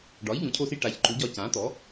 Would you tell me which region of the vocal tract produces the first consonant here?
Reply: retroflex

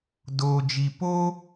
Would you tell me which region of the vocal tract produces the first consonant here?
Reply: tongue tip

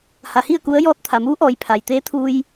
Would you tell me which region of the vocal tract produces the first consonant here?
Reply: throat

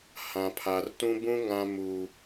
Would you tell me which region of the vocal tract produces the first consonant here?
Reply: throat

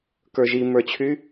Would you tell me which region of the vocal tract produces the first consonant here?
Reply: velum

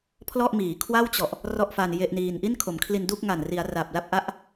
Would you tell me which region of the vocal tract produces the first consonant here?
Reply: lips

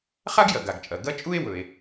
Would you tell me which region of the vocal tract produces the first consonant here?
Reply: uvula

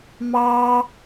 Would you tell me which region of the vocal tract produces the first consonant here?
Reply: lips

